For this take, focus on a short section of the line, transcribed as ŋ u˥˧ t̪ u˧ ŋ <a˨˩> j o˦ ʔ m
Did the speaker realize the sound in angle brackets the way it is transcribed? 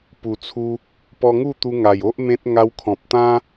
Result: yes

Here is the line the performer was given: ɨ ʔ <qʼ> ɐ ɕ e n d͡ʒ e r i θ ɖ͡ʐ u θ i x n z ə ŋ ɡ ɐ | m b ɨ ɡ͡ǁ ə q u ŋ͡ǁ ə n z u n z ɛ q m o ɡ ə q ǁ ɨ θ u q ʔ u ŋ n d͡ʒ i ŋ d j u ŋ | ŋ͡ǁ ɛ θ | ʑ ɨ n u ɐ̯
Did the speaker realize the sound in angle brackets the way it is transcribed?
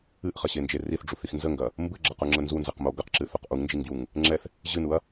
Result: no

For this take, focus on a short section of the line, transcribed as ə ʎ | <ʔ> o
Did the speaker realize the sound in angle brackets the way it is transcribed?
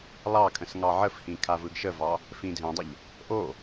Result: yes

